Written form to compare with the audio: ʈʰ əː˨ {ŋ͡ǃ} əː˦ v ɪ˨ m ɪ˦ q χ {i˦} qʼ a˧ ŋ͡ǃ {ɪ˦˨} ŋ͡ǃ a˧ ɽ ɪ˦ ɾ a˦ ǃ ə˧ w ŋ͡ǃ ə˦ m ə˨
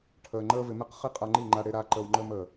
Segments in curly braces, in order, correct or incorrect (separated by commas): correct, correct, incorrect